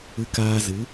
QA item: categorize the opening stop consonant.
plain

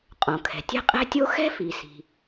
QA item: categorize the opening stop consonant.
ejective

